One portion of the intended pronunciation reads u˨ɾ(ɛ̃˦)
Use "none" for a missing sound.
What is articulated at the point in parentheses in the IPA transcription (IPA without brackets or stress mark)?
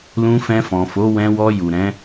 ɛ̃˨˦